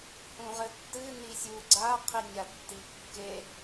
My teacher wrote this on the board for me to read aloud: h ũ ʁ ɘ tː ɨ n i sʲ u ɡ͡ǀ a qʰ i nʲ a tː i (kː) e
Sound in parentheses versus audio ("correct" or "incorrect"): correct